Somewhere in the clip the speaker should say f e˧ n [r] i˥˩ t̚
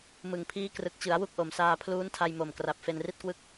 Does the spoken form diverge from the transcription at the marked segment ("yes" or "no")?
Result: no